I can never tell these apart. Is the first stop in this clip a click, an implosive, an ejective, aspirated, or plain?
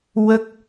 plain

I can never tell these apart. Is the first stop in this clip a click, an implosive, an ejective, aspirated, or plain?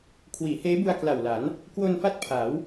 aspirated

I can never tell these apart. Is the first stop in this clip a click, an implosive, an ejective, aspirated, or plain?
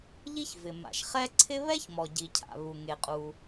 click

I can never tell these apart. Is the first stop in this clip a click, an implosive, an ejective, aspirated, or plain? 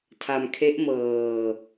aspirated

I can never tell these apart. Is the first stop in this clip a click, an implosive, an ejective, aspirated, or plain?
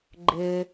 click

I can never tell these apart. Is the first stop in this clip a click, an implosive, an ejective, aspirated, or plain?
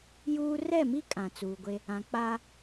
ejective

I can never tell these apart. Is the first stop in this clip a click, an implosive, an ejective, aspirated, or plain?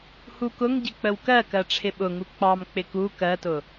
plain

